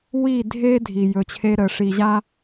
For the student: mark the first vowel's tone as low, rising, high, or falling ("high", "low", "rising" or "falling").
falling